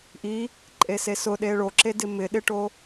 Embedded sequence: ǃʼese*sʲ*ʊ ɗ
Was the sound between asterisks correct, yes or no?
no